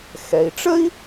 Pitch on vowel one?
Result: low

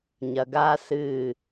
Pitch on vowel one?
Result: low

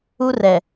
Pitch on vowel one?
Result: high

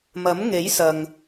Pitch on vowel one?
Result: rising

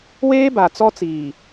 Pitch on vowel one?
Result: high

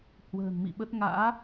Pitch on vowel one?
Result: low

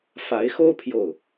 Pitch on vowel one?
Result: rising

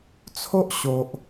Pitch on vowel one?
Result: high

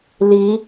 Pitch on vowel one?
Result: rising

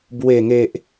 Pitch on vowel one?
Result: low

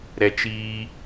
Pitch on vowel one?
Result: high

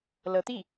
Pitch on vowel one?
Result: rising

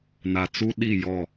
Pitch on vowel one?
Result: low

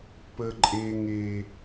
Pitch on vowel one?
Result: low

